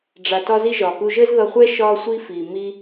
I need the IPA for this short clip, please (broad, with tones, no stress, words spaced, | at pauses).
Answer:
ɖ͡ʐa˧tɒ˦zi˦ ʒɒː˨ku˧ʒəː˦z ðʌ˧χʷɛ˦ ʃɒː˧sʷiː˧fiː˨ miː˧